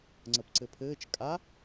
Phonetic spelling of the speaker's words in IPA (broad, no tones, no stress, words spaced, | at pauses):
ŋ͡ǀəpǀɘpʰɘːt͡ʃ kʼa